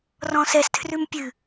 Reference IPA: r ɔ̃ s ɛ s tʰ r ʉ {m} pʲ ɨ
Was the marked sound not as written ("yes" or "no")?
no